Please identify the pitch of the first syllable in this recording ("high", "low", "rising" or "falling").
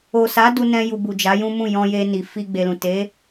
low